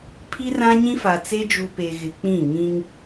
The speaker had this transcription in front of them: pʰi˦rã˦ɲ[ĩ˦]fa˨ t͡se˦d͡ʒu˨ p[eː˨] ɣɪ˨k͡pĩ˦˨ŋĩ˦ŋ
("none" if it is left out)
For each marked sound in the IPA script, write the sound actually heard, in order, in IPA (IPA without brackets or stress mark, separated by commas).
ĩ˦, e˨